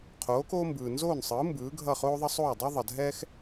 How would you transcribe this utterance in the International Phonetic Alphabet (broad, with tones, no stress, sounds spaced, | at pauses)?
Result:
qʰ oː˩˥ k oː˥ m b ɯː˩ n z oː˥˩ n sˤ ɯː˩˥ m b ɯː˩˥ ɡʱ ʌ˥˩ χ oː˥ ðˤ ʌ˥ sˤ oː˥˩ dˤ i˥ ðˤ ʌ˩ dʱ ɛː˥ x